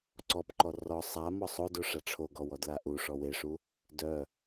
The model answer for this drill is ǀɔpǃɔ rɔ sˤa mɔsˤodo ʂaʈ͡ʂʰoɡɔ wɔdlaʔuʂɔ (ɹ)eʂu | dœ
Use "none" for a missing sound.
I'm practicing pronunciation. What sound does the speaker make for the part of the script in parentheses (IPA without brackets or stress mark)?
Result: w